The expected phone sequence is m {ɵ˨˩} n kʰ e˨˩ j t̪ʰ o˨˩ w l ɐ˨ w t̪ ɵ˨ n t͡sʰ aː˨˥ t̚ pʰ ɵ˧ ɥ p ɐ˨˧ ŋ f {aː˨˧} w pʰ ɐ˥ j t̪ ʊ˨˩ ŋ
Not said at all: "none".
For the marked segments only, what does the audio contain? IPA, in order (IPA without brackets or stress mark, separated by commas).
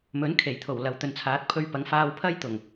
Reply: ɵ˨˥, aː˧